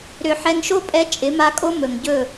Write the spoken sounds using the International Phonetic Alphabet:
ɾ ʏ˧ ħ ɛ˧ ŋ ʃ o˦ pʼ ɛ˧ t͡ʃʼ ɪ˨˦ m a˧ kʼ o˦ m ɵ˨ ŋ ɟ ɵ˦˨

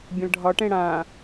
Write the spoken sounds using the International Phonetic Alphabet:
bʲ ə̃ l ɖʱ ɒ ʈ ẽ ɽ ã

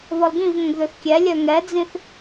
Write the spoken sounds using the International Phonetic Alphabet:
β ɔ l ɡ ĩ v ŋ ə̃ ɡ ð ø θ kʲ ɛ lʲ œ ŋ ɛ d͡z ĩ θ

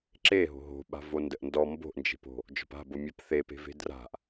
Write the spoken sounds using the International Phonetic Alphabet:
ǁ e ɦ o̤ ɦ o̤ ɓ a̤ v o n d ə ʔ n d ɔ m b o̤ ʔ n d͡ʒ e̤ p o̤ | d͡ʒ ɔ̤ p a̤ b o mʲ a p θ e p e̤ v e̤ d r a̤ ʔ

